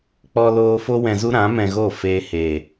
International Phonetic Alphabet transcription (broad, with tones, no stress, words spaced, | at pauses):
k͡pɔ˧loː˧ fo˦wɛ̃˧zu˦ɾã˨˦ mɛ̃˧ɣo˦˨ feː˧heː˨